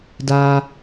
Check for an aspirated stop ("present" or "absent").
absent